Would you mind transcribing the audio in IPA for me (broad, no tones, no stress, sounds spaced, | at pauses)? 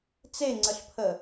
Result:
t͡s e ŋ͡ǀ ə ɬ pʰ ə